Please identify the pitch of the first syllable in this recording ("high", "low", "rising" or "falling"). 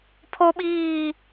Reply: high